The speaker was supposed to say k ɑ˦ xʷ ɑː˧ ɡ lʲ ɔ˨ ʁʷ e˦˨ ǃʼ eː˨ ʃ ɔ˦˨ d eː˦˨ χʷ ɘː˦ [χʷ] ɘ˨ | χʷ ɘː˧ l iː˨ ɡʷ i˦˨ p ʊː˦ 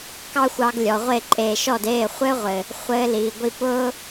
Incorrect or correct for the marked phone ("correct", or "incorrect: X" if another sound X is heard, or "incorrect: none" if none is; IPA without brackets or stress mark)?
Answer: incorrect: ʁʷ